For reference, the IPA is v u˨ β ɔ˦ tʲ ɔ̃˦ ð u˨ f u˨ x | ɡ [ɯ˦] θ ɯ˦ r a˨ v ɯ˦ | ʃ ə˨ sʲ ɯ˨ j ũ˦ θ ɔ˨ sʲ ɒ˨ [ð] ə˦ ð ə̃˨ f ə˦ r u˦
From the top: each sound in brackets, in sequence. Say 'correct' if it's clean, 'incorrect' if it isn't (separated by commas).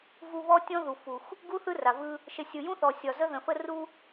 incorrect, incorrect